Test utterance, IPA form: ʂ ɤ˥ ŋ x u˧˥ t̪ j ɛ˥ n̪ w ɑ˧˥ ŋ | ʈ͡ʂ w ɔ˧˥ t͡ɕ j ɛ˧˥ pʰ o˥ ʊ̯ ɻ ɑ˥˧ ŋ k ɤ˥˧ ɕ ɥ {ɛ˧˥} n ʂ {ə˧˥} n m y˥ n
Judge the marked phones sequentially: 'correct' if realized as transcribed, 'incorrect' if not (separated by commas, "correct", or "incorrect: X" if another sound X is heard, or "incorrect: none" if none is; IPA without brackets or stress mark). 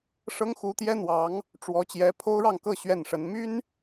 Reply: incorrect: ɛ˥˩, correct